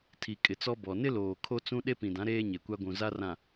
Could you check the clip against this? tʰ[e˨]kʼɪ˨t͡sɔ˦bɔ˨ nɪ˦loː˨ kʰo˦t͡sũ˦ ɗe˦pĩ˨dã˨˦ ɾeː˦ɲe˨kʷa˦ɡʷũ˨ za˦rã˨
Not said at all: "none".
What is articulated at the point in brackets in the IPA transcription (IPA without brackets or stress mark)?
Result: i˨